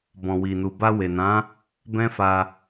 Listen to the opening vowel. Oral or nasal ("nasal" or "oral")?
nasal